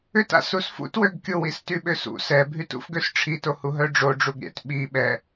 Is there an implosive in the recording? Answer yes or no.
yes